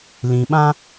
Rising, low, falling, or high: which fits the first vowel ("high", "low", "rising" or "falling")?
low